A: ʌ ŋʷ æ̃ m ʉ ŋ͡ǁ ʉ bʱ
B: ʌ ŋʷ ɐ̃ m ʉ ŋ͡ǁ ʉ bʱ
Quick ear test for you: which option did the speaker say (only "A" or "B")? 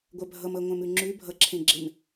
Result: A